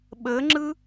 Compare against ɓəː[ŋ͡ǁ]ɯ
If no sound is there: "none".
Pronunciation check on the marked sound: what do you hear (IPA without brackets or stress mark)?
ŋ͡ǁ